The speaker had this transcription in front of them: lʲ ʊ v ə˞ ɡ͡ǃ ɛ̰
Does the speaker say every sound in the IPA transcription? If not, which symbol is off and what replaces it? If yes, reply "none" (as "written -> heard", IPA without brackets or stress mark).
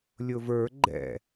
none